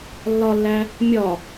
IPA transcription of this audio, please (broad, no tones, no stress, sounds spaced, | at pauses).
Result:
lː ɒ lː æ | mʲ ɒ